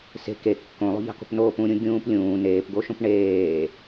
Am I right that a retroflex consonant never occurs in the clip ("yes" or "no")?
no